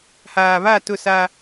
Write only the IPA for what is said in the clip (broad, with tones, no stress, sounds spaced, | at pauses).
h aː˨ β a˦˨ t ʊ˦˨ s a˦